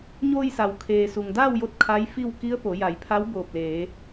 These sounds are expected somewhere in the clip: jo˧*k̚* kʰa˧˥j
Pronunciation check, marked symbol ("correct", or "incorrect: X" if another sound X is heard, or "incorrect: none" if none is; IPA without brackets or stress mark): incorrect: t̚